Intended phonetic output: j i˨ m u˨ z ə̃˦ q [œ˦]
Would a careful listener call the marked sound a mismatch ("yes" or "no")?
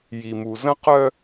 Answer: no